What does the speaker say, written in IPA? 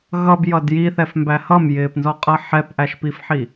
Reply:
ɣ ʌ b j ʌ d j i θ ɛ f m b æ h ʌ m j ɪː p n z ɔ qʼ ʌ ħ ɛ p ʔ æ ʃ p i f ħ i

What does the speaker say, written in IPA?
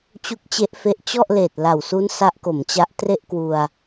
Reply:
t͡ɕ u˦˥ k̚ t͡ɕ e˦˥ ʔ f e˦˥ ʔ t͡ɕ ɔ˥˩ ʔ l eː˨˩ t̚ l a˨˩ w s u˦˥ n s a˦˥ ʔ k o˩˦ m t͡ɕ a˦˥ ʔ t r e˥˩ ʔ k w u˧ a̯

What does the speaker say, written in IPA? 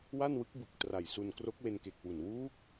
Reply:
w a˥˩ n w ɯ˦˥ k̚ b ɯ˨˩ k̚ t r a˨˩ j s u˧ n k r o˦˥ k̚ w e˧ n k e˨˩ k̚ w u˨˩ n w uː˦˥ k̚

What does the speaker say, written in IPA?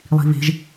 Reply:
lˠ i̤ β e̤ ʒ

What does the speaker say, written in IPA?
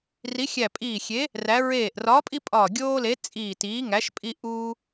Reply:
r i˨˥ xʲ æ˧˩ pʼ iː˧˩ xʲ e˨˥ | r æ˨˥ ɹ eː˧˩ ʔ r ɒː˨˥ pʼ i˦ pʼ ɒː˧˩ ɡʲ oː˦ l e˨˥ t͡sʼ iː˧˩ t iː˨˥ ŋ æ˨˥ ʃ pʼ i˦ ʔ uː˦

